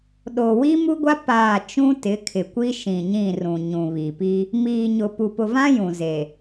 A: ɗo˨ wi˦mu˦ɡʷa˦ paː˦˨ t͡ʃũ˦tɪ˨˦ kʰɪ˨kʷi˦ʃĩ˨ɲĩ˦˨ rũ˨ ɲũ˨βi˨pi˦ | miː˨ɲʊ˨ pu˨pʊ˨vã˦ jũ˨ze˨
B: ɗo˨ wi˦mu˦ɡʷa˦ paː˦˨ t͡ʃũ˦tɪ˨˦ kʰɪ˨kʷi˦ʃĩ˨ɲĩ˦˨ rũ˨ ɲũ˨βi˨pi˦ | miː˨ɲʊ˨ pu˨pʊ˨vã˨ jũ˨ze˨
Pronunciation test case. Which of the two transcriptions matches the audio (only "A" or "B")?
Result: A